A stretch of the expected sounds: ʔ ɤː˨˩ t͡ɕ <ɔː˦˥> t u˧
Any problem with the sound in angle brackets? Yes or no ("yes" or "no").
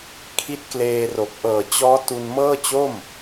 no